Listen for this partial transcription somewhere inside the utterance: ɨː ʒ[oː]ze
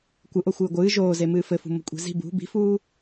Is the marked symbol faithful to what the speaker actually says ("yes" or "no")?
yes